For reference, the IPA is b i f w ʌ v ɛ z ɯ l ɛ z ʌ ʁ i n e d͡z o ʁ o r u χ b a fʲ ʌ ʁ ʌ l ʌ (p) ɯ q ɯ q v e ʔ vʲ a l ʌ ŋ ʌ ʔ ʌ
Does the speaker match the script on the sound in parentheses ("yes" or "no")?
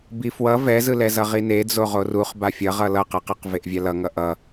no